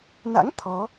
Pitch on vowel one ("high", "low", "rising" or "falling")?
rising